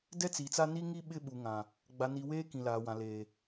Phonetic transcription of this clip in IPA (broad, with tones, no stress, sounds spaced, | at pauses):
d ɛ˦ t͡s iː˨ t͡s a˦ n i˦ ŋ i˦ ɓ ɪ˦ ɓ u˨ ŋ ã˨ | ɡ͡b a˨ n i˨ w eː˦ k ĩ˨ l aː˨ w ã˨ l eː˨